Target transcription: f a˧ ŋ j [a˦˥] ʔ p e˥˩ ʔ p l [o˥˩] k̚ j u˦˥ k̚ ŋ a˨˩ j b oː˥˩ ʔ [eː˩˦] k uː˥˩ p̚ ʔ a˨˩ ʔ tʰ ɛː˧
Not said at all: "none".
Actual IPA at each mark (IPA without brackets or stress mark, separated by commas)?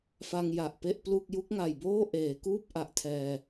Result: a˨˩, u˥˩, eː˩˦